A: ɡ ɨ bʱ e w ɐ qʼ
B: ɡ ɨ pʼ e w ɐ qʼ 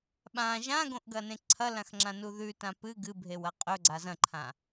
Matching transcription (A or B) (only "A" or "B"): A